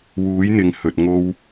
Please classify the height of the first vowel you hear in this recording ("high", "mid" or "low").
high